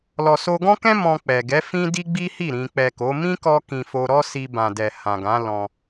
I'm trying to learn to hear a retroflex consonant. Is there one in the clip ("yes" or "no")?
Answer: no